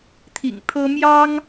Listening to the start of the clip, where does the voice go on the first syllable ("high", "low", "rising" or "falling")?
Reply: low